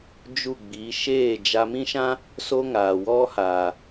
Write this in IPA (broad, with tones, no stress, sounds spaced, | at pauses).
d͡ʒ u˦˨ ɡ͡b i˨˦ ʃ eː˦˨ d͡ʒ a˧ m ĩ˦ ʃ ã˦ | s o˦ ŋ aː˨ w ɔ˦ h aː˨